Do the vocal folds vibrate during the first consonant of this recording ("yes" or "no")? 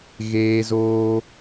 yes